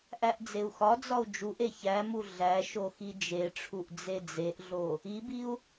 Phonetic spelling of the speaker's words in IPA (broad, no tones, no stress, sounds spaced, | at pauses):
ʔ æ ʔ d͡z e u̯ x ɒ d͡z ɒ u̯ d͡ʒ u ʔ e ç æ m u ɮ æ ʃ o x i d͡ʒ e ʈ͡ʂʰ u ʔ d͡z e d͡z e ʔ ɮ o | i b i u̯